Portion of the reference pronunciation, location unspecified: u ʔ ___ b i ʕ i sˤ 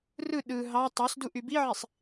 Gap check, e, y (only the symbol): y